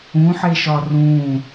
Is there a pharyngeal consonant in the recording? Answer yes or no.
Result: yes